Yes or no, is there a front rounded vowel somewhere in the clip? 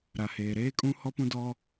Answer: no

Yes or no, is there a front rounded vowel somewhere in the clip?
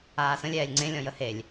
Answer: no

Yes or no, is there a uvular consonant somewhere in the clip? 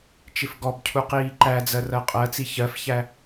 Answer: yes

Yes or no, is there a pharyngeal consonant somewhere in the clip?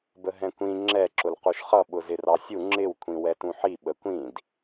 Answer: yes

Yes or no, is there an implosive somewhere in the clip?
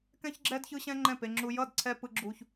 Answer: no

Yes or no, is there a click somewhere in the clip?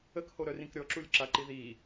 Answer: yes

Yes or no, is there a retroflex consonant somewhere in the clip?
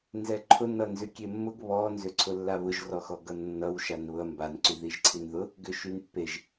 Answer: no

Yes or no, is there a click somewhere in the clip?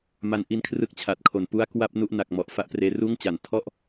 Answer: no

